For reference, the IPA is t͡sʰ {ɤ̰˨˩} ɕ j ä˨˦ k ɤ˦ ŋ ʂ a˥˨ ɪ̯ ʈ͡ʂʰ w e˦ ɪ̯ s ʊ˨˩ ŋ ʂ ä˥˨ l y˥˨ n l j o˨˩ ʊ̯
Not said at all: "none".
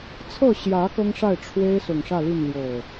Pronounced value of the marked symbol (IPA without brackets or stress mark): ɤ˥˨